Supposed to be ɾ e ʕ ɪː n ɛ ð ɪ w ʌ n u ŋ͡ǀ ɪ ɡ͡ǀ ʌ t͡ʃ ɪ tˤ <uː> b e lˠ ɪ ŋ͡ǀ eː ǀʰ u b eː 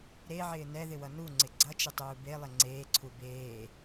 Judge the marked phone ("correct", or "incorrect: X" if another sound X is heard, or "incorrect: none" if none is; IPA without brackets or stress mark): correct